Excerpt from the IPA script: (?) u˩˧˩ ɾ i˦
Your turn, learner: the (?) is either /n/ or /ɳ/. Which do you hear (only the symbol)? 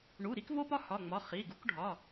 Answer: ɳ